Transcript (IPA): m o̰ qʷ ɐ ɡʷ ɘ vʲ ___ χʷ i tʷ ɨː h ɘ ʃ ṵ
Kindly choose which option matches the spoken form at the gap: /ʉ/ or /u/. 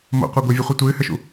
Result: u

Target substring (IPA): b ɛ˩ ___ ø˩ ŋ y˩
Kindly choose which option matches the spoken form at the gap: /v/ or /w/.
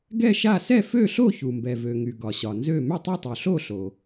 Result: v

